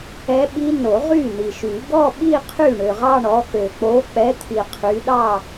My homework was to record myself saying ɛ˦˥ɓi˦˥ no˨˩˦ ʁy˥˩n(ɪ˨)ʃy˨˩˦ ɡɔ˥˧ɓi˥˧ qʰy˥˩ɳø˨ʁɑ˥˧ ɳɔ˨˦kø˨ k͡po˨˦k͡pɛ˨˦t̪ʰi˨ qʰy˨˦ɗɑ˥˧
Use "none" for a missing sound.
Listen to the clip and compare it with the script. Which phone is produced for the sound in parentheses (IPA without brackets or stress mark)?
i˨